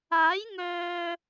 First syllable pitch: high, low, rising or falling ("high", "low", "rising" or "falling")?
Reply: rising